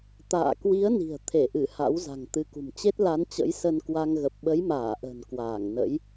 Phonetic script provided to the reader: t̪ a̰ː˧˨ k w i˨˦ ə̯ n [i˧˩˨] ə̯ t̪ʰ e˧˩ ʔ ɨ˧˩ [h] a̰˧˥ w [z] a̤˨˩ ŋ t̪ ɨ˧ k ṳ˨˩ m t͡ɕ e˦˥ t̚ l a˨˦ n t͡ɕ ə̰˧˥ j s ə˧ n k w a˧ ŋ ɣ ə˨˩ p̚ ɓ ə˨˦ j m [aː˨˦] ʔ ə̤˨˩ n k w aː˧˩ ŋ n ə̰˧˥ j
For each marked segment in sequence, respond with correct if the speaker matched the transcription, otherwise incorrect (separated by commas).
incorrect, correct, correct, incorrect